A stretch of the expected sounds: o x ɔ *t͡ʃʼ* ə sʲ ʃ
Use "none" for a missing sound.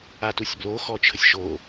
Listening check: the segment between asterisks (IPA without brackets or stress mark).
t͡ʃʰ